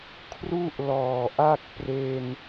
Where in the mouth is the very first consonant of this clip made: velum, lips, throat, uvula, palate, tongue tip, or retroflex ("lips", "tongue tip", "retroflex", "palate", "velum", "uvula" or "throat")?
velum